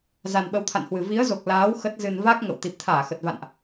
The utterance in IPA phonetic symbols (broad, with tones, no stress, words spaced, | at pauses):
za˨˩nɓə˨˦wt̪ʰa̰˧˨nhwɨ˨˩ vi˨˦ə̯zo˨˩k̚ laː˨˦w xə˦˥t̚zɨ˧n va˦˥k̚ ŋə̰˧˨w t̪i˨˩p̚t̪ʰaː˧˩xə˨˩t̚va̰˧˨nʔ